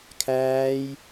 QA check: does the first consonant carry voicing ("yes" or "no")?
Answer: no